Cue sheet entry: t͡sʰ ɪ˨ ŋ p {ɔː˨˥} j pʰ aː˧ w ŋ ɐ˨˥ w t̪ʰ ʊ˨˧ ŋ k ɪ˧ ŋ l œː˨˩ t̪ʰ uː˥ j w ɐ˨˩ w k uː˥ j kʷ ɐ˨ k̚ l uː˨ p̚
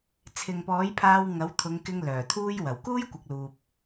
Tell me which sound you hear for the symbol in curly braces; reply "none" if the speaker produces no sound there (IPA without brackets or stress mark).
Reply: ɔː˨˥